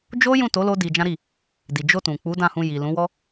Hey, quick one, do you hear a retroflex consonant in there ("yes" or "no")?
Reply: no